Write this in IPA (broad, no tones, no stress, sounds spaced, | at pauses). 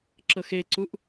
ǁ ɤ x e ǀ u ʔ